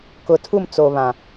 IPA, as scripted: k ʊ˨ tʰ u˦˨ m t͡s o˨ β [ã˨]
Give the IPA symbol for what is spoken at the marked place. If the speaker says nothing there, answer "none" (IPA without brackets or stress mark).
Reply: ã˨